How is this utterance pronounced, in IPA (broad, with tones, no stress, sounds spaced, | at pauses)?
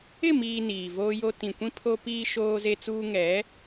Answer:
ɪ˦˨ m iː˨ n iː˨ v oː˦ j o˦ t ĩ˨ kʷ ĩ˦ pʰ o˦ p iː˦ ʃ oː˦ z e˦ t͡s uː˦ ŋ ɛ˨˦